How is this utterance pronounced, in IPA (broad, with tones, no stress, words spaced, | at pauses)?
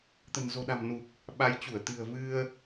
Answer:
t̪ə̤˨˩nzo̤˨˩ɗa̤˨˩mnu˨˩k̚ | ɓa˨˦jt͡ɕu˧˩ə̯ t̪ɨ̤˨˩ə̯vɨ˧ə̯